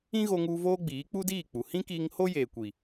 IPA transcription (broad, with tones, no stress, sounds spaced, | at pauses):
ĩ˦ ɣ o˧ ŋ u˧ v oː˦ ɡ͡b iː˨˦ k͡p u˦ d iː˦˨ k͡p u˨ h ĩ˦ k i˧ ŋ h o˦ j eː˨ kʷ i˨